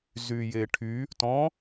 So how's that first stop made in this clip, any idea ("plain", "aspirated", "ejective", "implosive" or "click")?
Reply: aspirated